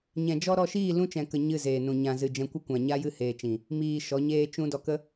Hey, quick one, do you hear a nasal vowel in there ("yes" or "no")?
yes